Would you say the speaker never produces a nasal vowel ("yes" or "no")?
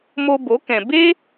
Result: no